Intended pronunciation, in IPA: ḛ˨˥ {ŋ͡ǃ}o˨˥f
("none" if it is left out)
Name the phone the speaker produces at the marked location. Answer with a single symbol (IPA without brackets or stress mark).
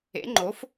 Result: ŋ͡ǃ